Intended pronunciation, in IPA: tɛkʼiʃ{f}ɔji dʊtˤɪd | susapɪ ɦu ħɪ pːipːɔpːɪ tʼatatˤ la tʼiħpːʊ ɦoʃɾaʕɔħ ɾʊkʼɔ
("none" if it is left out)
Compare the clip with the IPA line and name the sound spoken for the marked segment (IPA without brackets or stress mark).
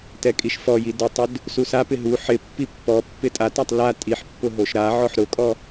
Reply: f